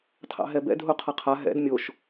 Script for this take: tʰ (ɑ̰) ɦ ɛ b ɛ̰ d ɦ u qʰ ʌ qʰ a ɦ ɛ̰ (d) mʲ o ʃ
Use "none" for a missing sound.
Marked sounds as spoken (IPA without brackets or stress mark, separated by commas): ɑ̰, d